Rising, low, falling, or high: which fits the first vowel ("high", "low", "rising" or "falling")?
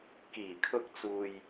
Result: low